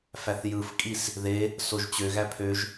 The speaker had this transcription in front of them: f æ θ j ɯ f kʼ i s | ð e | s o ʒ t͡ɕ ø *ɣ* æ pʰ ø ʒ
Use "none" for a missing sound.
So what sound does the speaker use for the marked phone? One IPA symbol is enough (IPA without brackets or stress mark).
ɣ